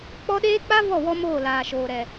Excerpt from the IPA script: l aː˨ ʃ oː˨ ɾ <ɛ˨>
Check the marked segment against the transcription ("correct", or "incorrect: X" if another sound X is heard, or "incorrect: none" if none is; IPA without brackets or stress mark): correct